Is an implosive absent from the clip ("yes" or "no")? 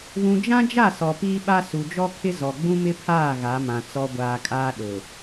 no